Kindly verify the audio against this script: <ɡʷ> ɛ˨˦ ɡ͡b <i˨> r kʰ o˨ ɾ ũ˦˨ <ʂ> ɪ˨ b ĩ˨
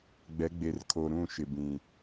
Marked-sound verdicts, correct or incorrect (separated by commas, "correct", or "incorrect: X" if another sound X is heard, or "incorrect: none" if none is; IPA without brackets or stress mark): incorrect: ɡ͡b, incorrect: e˨, incorrect: ʃ